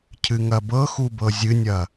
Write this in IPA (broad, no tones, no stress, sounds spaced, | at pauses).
cʰ ɨ ŋ ɐ b ɤ x u b ɤ zʲ ɨ nʲ ɐ